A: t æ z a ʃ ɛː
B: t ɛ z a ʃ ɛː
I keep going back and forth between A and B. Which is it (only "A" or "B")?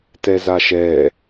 B